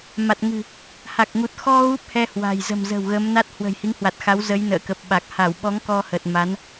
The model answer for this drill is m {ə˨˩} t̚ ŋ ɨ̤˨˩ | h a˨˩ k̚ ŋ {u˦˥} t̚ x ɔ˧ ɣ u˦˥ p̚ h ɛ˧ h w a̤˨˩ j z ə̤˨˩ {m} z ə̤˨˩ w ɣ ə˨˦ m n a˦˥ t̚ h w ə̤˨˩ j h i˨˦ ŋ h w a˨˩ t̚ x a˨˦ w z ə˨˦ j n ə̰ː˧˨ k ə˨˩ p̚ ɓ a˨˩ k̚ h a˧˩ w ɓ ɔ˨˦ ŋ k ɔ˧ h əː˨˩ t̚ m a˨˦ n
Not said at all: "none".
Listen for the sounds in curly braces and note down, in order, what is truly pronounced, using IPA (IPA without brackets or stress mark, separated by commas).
a˨˩, u˨˩, m